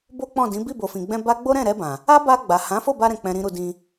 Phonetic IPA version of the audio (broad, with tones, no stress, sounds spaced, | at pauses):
b o˦ k͡p ɔ̃˦˨ d ĩ˨˦ b i˦˨ b o˨ f ĩ˨ ɡ͡b ɛ̃˧ b a˦ ɡ͡b o˦ ɾ ɛ̃˦˨ ɾ ɛ˧ b ã˨ | a˦ b a˧ ɡ͡b a˨ h ã˨˦ f o˦˨ b a˧ ɾ ɛ̃˨ k͡p ɛ̃˨ ɾ ĩ˨ ɾ u˨ d ĩ˧